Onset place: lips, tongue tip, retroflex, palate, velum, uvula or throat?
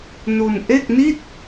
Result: tongue tip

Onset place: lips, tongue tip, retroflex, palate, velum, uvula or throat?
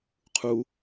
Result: uvula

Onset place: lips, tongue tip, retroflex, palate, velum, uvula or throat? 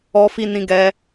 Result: lips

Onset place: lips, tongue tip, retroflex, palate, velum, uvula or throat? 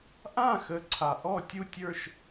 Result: throat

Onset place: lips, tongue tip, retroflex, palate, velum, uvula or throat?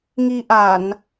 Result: velum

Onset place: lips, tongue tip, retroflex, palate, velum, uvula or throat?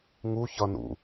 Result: velum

